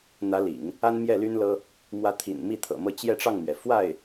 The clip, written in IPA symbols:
n̪ä˧˥lḭ˨˩˦ŋ | a˥nmjɛ˥˩ly˥nlɤ˥ | mwä˧˥t̪ʰḭ˨˩n mi˥˩t̪ʰɤ̰˨˩mɤ˥˧ t͡ɕjɛ˥˧ʈ͡ʂɑ˥˩ŋmɥɛ˩ fwa˥˩ɪ̯

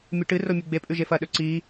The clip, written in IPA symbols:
mʲʉʈɨro mʲʉɡ͡bepʼʉ ʒefɐɗɵ ǀi

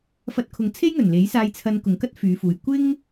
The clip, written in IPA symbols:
fɐ˧t̚kʰʊ˨˧ŋ t͡sʰe˥jŋɵ˨˩n le˨˥jsaː˧jt͡sʰɐ˧n kʊ˨˩ŋkɐ˥t̚ fyː˨˧fuː˨j kʷɪ˥ŋ

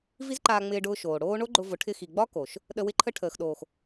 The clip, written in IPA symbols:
vi˦zǃaː˧ŋ͡mɪː˧ɖʊː˧ ʃoː˨ɽoː˦ ɳo˦ɡ͡ǃʊ˧vʊ˨˦ʈʰɪ˧ xi˨ɡ͡bɒ˦ ko˨ʃ | ɗə˧wɪ˦ǃʰə˦ ʈʰəː˨xɗoː˨x

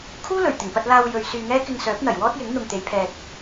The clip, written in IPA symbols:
kʰuː˥lɵ˨˩ɥt̪ɪ˨˩ŋpɐ˧t̚ laː˧wjɵ˨ɥ syː˧ŋɛː˥ kɪ˧ŋsœː˨˥p̚n̪ɐ˨˩j wɔː˥t̚jɪ˨˥ŋ n̪ʊ˨ŋt̪e˨˧jpʰɛː˨t̚

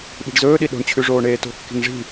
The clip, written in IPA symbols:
ɓi̤ɖzɵːɗi ɗo̤ɳt͡ɕʰʉ ʐoːɳeːto̤kːi̤ŋ ʐi̤

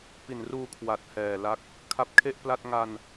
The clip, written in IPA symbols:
pi˨˩nruː˧kʰwa˨˩t̚ hɛː˨˩la˦˥k̚ | kʰa˦˥p̚kʰe˥˩ʔpla˥˩t̚ ŋa˧n

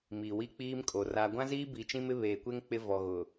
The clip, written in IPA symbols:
mi˨wi˦k͡piː˦mkʼo˨ ra˦ ɡʷã˦ziː˦bi˨ t͡ʃĩ˦mɪ˦βeː˨kʷe˦ŋ k͡pɪ˦vɔ˨ɣʊ˨

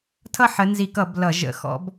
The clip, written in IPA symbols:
tʰʌ˥˨ħə˨˦nzi˧˩˧kʌ˧˩˧b lʌ˧˩˧ʒə̰˨˦ xɔ̰˨˦b

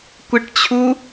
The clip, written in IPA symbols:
kʷɪʈt͡ɕʰu

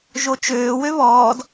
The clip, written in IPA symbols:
ʒot͡ʃøːwø βɔːd

